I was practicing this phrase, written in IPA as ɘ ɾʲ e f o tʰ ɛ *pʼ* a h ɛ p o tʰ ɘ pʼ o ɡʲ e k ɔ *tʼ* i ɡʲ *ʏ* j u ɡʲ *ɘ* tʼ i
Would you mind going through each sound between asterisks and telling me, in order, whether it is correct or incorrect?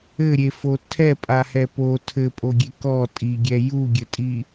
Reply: correct, correct, incorrect: ɛ, correct

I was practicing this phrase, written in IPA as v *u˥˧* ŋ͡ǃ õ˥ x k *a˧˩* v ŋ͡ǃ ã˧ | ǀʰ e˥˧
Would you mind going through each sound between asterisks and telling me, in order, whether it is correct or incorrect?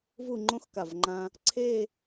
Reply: correct, correct

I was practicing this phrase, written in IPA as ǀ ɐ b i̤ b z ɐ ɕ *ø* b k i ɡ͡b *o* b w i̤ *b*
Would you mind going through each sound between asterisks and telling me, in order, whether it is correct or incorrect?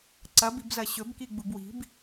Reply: incorrect: ɵ, incorrect: u, correct

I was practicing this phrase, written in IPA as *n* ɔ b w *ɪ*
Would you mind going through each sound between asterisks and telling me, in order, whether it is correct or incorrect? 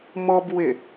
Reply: incorrect: m, correct

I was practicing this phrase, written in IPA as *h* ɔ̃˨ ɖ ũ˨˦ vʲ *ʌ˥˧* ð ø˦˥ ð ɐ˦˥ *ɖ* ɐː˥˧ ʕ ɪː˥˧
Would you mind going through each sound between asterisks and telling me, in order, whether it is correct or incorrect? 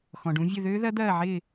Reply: incorrect: x, incorrect: ə˥˧, incorrect: d̪

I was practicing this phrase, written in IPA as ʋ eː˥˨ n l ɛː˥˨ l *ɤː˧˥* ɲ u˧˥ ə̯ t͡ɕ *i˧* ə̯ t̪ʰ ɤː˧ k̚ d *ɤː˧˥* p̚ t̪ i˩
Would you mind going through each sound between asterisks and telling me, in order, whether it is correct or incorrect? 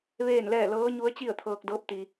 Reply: correct, incorrect: i˥˨, correct

